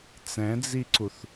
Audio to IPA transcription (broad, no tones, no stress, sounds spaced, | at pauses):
t͡s ɛ̃ d͡z i ǀ u θ